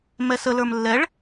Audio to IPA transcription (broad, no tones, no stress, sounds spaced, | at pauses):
m ɛ s ə l ə˞ m lː ɛ ɭ